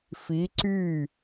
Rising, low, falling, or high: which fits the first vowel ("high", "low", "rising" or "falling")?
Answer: rising